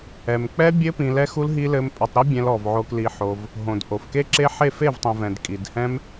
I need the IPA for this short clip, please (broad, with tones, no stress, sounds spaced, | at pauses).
ɛ˨ m k͡p ɛ˦ bʲ ɘ˦ p ĩ˧ l ɛ˦ x u˦ l ɦ i˧ l ɘ˧ m pʼ ɘ˧ tˤ ɾ i˦ bʲ ɛ̃˧ l ɔ˨ v ʕ o˧ k l i˧ ħ o˧ v | ɦ õ˨ d ʔ o˨ f k e˦ ǁ e˦ ħ e˦˨ f e˦˨ v tˤ ĩ˨ v ɛ̃˨ d kʼ i˨ d h ɛ̃˦ m